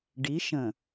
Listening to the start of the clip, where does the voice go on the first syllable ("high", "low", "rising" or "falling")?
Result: rising